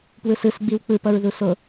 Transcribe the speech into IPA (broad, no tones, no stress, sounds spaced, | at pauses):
p w ɯ s ɯ s ɡ͡b i w k͡p ɯ p ʌ ɹ ð u s o